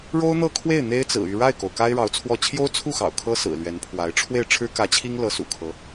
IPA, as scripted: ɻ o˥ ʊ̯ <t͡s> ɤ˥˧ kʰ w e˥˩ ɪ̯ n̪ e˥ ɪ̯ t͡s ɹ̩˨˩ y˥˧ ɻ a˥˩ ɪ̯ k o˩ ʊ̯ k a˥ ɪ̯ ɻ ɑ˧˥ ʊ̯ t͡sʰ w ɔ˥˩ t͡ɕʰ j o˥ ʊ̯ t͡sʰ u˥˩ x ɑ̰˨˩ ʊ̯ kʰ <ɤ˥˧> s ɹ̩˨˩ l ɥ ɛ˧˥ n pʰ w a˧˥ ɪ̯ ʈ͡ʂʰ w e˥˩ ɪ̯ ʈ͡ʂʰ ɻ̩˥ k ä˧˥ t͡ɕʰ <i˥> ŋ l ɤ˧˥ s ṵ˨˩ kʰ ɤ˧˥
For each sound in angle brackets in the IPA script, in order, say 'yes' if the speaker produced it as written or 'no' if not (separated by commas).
no, no, yes